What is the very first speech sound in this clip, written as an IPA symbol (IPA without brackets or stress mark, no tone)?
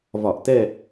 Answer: v